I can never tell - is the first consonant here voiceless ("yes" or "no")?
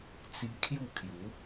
yes